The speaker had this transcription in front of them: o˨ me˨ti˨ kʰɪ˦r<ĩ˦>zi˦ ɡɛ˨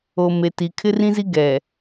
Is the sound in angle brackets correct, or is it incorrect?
correct